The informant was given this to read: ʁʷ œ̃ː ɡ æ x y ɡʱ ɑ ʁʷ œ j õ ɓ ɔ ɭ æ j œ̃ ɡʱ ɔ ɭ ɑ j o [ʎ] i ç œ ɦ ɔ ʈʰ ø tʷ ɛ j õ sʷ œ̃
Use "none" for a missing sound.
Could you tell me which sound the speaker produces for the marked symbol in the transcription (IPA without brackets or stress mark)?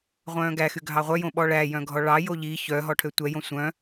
ʎ